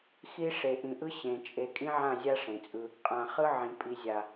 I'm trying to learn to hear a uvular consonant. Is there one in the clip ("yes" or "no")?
yes